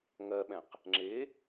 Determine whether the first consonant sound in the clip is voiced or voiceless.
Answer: voiced